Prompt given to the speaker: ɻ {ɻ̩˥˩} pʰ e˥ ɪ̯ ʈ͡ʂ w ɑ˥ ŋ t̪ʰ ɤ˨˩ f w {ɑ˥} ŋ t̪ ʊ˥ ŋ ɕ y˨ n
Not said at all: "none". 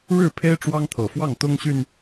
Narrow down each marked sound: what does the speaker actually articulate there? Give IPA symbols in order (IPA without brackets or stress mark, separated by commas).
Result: ɻ̩˥˩, ɑ˥˩